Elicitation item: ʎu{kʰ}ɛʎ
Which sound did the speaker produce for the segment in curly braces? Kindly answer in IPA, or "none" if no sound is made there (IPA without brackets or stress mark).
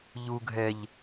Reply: ɡʱ